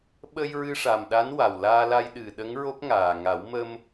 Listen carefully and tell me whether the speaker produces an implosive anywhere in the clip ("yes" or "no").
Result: yes